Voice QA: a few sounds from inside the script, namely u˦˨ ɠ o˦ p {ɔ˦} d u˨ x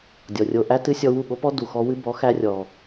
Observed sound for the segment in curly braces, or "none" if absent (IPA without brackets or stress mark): ɔ˦